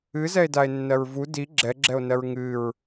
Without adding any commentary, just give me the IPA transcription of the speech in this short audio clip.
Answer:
ɨzɛe̯dae̯nːɜɹ vu di ɡ͡ǁɛɡ͡ǁɛo̯nɜɹ ŋɨɹ

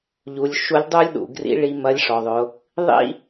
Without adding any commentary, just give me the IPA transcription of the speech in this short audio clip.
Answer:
ʎu˩˧lʲʃu˧˥lʲdˤu˥lʲɗṵ˩ ɡrḭ˧˥ɭi˧ mɐ˧˥lʲʂɔ˩ðˤʊ˩˧ | ðˤḭ˥

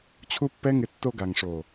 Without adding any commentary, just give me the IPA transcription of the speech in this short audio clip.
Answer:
t͡ɕʰu˦pːɛ˦ŋɪ˧ tːo˧ɡa˨ŋʂo˨

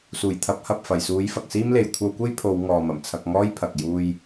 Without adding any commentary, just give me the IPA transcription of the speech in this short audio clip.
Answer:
suː˨˩jt̪ʰɐ˨˥p̚ hɐ˨p̚fɐ˨˩jsuː˨˥j fɐ˨k̚siː˥mle˨j kʷʰɐ˧wkʷe˥jpʰo˨˧w ŋɔː˨ mɐ˨˩m t͡sʰɐ˧k̚ŋɔː˥jpʰɐ˨k̚ juː˧j

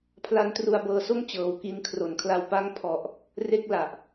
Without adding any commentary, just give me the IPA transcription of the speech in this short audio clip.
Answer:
pʰla˦˥n tru˧a̯bɤː˧so˥˩m t͡ɕɤː˨˩wki˧nkʰro˨˩nkʰla˧w pa˦˥ŋpʰɔ˨˩ʔ | re˦˥k̚ la˨˩ʔ

